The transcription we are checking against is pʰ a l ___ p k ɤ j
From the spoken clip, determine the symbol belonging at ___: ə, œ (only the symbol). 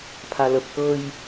ə